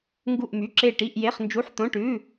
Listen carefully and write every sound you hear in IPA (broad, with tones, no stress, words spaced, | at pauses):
ŋɡu˥˧ʔmy˧˥˧ǁe˥˧ ʈi˧˥˧ʔje˧˥˧χ nd͡ʒu˧˥˧ħt̪õ˧˥˧ʈʉ˧˥˧